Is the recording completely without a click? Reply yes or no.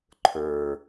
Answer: no